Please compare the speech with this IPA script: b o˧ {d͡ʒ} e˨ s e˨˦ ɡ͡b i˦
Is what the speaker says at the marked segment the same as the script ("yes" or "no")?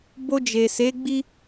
yes